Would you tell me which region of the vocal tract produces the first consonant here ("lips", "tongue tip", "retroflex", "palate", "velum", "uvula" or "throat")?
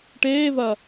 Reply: retroflex